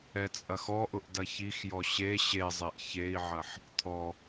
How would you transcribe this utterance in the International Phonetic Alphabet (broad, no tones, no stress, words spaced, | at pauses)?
ɛt͡sʼɐxɔʔʊʔ dɐçixjɔ ɕe ɕezˤeʔ çei̯ʕɐħ | t̪ʰɔ